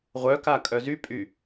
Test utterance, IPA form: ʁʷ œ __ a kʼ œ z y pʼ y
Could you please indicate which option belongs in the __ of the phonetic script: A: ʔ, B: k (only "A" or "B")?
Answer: B